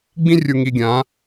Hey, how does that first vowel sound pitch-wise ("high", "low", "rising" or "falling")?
high